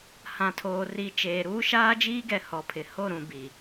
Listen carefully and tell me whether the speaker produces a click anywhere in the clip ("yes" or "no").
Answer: no